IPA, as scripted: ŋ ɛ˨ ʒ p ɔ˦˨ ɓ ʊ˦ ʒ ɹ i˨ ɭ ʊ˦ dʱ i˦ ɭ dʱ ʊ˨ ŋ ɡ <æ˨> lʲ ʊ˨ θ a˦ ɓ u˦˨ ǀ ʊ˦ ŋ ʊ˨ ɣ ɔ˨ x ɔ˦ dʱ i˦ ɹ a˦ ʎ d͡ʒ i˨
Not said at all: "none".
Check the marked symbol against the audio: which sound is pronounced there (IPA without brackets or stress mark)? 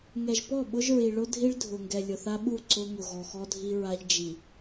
ɛ˨